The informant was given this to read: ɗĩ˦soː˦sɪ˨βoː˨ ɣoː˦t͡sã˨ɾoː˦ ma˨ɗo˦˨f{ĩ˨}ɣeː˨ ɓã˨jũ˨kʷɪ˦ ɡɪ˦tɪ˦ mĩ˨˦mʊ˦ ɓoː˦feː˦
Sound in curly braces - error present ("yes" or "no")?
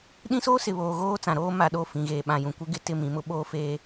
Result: no